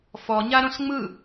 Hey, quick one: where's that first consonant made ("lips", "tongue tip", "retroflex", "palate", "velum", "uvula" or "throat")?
lips